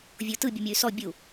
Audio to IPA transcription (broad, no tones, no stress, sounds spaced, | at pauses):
vʲ o t ɯ bʲ u mʲ ɤ y̯ s ɔ bʲ u